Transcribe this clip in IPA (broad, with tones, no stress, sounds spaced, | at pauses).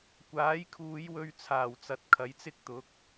kʷ aː˨˥ j kʰ uː˨˧ j w ɵ˧ ɥ t͡sʰ aː˨˩ w t͡s ɐ˨ t̚ kʰ ɐ˨˥ j t͡s ɪ˥ k̚ t̪ ʊ˨˥ k̚